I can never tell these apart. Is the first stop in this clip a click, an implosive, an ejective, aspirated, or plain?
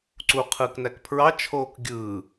click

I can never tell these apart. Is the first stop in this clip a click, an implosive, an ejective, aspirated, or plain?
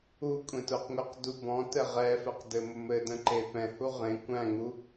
ejective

